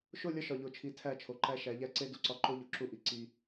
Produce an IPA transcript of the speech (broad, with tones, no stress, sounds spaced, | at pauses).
ʃ o˦˨ lʲ ɒ˦ ʃ ɒ˨ ʎ o˨ t͡ʃʰ i˨ tʰ æ˦˨ t͡ʃʰ o˨ ǃ æ˦ ʃ æ˨˦ ʎ æ˦ ǀ e˦ d u˨ ǀ ɒ˦ ǃ o˦ ʎ o˨ ǁ u˦ ʔ i˨ ǀ i˦